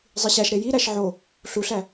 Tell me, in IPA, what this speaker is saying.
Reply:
zˤiɕæʃɾe jiɾæʃ ʕo | ɬuɬæ

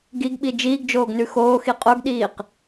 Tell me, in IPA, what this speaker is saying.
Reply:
ɡiɡɓi d͡ʒiːɡd͡ʒoːɡnʉ xoːxi qʼoɡɗiːq

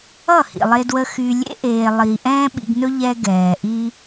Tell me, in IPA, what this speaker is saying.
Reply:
ʌ˦˨hḭ˨ lˠe˧dwə˧ xy˧ lʲḛ˧ʔeː˨lˠi˨ ʔɛ̃ː˦ɓḭ˧ɡnɵ˦ ʎɛ˧ɡɛː˨ʔi˧

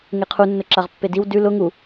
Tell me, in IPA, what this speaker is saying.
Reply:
ŋeqʰunːʊ ǁaʁpːediw dʉ lʊ ŋu

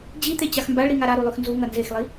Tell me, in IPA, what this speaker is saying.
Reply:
d͡ʑit̪e t͡ɕaxmbaɭɾi ŋaɾaɾu lˠʉxnzuŋɐ nzexlˠi

